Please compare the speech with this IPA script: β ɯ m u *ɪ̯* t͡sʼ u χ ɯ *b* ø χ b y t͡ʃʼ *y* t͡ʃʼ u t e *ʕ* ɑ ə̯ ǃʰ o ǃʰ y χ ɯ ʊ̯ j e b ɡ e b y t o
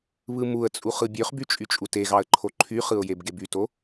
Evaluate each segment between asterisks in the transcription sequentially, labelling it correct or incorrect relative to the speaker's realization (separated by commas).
incorrect, incorrect, correct, incorrect